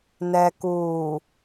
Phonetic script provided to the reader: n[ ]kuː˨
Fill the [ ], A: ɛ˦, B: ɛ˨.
B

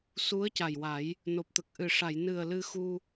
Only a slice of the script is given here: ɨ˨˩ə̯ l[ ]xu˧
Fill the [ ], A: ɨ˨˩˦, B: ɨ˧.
B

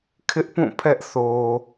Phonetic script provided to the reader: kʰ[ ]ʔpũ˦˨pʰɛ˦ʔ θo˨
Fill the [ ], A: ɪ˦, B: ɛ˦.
A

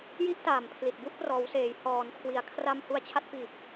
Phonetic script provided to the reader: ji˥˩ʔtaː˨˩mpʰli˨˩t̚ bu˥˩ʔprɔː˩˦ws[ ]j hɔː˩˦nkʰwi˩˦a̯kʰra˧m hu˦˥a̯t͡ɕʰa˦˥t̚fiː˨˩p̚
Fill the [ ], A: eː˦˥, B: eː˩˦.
B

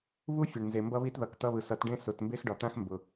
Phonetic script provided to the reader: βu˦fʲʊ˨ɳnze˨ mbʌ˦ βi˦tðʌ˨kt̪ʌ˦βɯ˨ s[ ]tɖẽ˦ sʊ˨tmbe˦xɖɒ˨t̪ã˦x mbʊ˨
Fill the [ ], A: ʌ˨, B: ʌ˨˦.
B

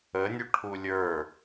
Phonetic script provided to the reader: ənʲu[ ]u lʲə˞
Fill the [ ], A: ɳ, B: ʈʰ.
B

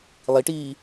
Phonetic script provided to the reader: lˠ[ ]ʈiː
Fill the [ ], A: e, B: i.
B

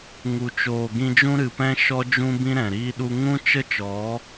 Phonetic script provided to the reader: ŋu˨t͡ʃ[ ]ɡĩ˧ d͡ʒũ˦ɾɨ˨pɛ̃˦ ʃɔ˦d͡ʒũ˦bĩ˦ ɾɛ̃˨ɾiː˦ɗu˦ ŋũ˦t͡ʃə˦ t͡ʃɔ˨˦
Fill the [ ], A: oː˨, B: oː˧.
A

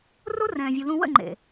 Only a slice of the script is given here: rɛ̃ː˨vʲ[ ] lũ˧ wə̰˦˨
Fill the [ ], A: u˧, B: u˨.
B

